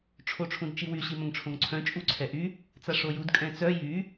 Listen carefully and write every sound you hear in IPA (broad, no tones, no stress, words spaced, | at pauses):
ʈ͡ʂʰoʈ͡ʂʰũdt͡ʃiwy ɕimœ̃ŋʈ͡ʂʰõŋǀʰœ̃ t͡ʃʼuǀʰɛʔy | t͡saʂojud kʼɛ̃t͡sœ jy